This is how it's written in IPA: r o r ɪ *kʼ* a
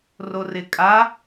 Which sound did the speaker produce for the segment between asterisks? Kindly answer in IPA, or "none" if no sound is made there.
kʼ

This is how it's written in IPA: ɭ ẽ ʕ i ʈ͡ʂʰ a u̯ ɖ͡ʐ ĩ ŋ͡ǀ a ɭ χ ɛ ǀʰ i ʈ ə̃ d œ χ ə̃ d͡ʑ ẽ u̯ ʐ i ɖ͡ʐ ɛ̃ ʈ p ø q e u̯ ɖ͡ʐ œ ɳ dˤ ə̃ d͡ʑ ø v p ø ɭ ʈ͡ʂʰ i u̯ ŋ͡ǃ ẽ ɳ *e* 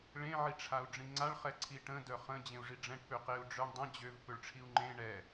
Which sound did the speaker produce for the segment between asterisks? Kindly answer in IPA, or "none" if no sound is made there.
ɛ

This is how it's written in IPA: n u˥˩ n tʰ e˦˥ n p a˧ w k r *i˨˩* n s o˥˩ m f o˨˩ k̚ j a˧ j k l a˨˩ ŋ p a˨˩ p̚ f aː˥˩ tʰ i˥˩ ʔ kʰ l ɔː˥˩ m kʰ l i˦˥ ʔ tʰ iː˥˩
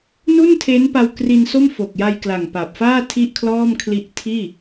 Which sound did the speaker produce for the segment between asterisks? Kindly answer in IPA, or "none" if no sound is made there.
i˧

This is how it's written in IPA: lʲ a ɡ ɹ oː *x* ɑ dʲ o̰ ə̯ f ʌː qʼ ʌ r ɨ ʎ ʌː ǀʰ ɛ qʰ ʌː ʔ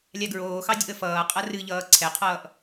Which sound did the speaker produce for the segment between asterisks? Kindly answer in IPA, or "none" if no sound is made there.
x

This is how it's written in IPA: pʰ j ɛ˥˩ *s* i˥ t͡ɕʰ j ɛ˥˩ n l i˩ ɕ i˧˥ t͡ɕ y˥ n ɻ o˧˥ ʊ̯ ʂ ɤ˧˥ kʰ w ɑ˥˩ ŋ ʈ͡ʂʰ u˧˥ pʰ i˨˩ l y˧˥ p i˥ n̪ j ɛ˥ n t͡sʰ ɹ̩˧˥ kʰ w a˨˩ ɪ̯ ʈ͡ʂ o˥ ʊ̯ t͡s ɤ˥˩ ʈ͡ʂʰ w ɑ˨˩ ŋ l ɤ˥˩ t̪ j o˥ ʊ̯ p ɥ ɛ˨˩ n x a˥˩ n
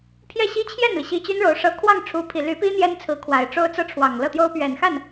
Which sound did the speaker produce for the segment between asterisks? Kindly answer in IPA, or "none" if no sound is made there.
ɕ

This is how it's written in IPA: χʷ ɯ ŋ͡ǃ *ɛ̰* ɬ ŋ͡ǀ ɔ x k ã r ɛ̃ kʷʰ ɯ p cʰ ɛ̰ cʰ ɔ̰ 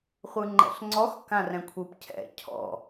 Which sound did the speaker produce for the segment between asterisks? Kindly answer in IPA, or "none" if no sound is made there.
ɛ̰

